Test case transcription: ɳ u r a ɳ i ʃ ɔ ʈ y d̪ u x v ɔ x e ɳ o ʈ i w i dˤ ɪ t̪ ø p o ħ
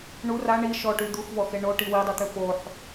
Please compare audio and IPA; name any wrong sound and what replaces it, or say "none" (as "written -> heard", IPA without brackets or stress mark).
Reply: ɪ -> y